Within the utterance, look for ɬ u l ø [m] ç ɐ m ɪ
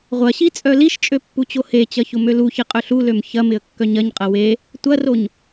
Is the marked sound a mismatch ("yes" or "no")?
no